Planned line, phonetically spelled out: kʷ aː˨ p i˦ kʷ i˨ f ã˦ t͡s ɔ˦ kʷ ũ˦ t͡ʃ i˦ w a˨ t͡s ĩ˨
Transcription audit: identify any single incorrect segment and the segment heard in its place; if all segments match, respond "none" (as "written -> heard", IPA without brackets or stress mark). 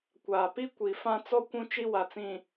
none